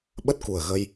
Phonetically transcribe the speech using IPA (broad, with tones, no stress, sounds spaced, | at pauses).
ɓ ə˦˥ t̚ k u˨˩ ə̯ ɣ ə˧ j